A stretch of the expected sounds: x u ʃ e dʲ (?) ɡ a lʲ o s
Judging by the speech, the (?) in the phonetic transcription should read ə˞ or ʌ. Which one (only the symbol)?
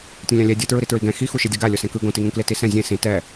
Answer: ʌ